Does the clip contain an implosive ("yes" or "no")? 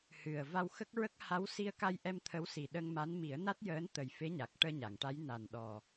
yes